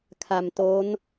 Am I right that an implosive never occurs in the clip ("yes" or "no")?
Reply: yes